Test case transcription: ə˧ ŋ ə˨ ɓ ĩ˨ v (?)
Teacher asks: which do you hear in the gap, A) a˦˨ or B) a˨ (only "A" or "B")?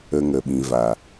B